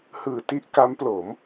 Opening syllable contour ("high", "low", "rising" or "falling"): low